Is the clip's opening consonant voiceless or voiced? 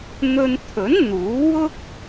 voiced